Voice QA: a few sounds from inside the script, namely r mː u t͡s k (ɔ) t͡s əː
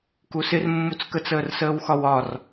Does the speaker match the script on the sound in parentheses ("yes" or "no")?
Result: no